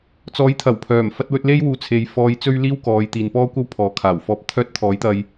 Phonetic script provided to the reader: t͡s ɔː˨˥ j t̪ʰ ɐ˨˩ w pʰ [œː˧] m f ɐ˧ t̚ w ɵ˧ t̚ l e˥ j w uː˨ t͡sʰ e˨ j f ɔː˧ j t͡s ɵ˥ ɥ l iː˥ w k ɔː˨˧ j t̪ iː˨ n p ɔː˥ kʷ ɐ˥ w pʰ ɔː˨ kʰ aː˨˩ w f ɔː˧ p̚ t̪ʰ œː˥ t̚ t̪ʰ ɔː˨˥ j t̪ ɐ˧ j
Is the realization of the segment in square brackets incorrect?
yes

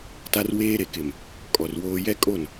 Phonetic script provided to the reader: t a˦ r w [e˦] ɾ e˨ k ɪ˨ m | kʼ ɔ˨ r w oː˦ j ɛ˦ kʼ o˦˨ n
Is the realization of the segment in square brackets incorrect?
yes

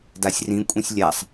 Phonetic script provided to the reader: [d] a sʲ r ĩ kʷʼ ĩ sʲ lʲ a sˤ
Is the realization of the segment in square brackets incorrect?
no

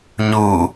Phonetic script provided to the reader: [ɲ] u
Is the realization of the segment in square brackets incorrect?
no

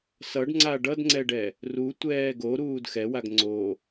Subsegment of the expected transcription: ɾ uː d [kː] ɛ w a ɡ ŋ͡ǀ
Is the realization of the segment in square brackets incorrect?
yes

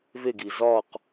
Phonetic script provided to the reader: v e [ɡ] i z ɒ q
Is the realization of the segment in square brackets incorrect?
no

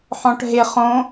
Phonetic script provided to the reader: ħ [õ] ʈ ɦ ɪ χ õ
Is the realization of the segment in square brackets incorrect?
yes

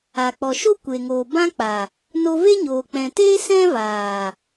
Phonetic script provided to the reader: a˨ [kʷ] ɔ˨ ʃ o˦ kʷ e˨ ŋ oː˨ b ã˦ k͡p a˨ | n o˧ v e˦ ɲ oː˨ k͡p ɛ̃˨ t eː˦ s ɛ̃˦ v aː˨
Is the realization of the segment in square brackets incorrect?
yes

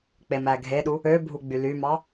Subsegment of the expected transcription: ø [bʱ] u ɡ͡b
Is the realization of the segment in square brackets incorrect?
no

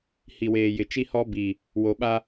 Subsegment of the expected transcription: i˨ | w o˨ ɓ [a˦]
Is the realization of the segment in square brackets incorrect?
no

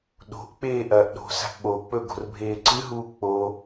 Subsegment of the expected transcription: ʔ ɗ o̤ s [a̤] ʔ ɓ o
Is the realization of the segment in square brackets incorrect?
no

